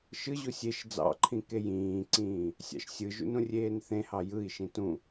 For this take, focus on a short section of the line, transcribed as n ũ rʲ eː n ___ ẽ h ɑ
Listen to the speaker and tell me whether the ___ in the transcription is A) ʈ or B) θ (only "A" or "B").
B